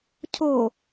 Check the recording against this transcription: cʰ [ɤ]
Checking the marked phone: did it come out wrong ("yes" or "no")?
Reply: yes